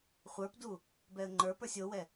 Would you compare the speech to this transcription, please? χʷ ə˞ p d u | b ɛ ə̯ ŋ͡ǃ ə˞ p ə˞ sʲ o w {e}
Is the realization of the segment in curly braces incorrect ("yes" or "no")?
yes